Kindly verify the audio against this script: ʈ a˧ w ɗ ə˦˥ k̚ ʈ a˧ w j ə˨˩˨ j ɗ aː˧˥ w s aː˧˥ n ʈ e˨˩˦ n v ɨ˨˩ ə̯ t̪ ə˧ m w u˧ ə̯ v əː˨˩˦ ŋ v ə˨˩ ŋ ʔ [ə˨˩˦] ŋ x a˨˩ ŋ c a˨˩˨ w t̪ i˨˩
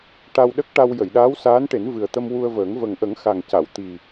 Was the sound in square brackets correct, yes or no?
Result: yes